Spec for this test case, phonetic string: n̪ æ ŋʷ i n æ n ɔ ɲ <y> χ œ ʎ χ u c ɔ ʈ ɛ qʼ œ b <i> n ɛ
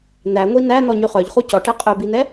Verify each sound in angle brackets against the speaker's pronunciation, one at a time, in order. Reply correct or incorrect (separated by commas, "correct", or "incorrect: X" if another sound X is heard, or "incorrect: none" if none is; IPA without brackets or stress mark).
correct, correct